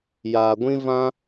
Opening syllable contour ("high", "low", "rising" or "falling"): low